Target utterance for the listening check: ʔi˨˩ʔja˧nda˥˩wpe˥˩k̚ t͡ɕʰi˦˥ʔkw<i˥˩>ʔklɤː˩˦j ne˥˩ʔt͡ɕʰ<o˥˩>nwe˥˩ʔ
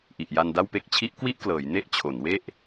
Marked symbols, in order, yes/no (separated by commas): yes, no